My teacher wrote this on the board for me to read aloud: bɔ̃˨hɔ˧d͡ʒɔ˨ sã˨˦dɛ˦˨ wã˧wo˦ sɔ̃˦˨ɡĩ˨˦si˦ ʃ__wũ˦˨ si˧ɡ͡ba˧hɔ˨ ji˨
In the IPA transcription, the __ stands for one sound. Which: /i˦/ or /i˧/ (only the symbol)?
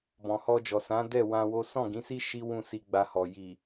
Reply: i˦